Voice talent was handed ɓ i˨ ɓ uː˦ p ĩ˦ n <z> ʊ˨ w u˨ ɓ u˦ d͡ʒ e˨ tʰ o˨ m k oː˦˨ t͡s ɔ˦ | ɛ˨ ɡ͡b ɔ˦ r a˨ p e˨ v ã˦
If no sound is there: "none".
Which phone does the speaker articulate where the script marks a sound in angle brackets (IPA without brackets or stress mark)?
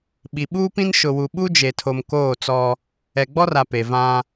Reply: ʃ